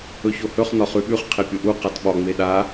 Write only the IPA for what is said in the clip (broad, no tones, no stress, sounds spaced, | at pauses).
ɵ ç o h ɵ χ n ɒ χ ʉ ɓ ʉ χ qʰ e pʲ o ʔ u q a t ɓ ɒ ŋ͡m e ɗ a